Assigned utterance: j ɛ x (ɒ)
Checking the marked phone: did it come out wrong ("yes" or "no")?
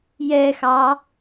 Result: yes